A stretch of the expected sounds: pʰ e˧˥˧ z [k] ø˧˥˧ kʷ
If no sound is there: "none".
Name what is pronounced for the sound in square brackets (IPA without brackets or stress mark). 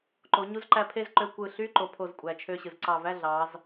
ǃ